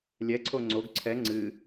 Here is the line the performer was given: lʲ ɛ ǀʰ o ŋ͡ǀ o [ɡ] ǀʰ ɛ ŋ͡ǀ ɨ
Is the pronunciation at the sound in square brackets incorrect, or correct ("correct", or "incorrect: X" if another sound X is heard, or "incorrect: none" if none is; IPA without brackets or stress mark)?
correct